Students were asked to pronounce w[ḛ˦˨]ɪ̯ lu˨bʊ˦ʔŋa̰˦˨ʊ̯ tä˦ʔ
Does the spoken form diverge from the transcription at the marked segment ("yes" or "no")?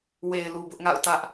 yes